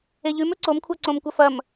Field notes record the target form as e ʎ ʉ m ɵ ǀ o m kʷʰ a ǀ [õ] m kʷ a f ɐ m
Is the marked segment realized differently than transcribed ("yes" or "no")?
no